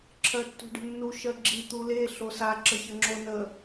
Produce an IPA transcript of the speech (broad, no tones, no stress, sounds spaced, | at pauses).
ǁʰ ɜ tː o̤ ɖ ə̤ nː u ʃ ɜ ɡ͡ǁ i t̪ u l e ɬ o s a ǁ ə ç ə ŋ͡ǁ o n ə